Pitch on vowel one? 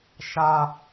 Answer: low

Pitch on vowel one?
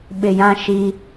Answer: low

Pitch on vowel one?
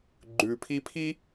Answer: low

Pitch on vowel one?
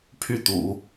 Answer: falling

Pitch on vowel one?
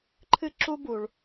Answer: high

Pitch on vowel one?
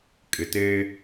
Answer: low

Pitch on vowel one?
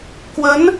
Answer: rising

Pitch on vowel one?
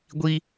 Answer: high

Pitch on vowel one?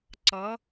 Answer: rising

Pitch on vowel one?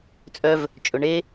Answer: high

